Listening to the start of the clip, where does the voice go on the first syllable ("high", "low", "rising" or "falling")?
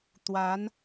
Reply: rising